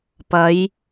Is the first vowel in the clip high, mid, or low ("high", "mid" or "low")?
low